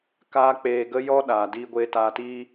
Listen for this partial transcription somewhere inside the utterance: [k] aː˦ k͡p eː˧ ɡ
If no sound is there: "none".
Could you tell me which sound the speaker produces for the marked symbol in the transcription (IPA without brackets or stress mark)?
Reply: k